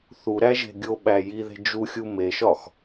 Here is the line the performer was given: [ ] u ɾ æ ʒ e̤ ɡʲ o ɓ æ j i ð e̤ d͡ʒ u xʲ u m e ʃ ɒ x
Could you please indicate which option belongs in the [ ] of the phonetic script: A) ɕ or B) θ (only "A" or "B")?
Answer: B